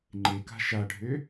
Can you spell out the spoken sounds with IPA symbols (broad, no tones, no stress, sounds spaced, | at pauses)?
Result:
ŋ͡ǃ e k a̤ ʃ a ɖʱ ø